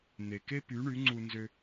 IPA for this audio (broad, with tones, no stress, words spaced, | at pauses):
n̪e˩ke˥ py˩˥ɳy˩˥ ŋ͡ǀu˧nzø˧